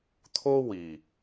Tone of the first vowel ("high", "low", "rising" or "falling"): high